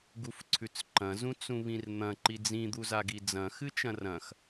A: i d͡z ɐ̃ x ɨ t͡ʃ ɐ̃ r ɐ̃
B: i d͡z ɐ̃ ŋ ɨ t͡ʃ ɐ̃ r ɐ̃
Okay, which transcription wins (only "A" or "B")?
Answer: A